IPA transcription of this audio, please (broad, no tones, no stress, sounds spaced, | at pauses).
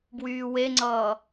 b w yː w e ŋ͡ǀ ʌː